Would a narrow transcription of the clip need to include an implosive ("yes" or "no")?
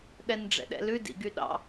yes